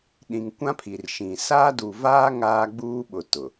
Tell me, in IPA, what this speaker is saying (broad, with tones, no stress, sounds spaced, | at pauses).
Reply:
ɗ ĩ˨ ŋ kʷ ã˦ pʰ i˨ r ʃ ĩ˨ s aː˦ d u˨ v aː˦ ŋ aː˦ ɡ͡b uː˦ ɓ ʊ˨ t ʊ˨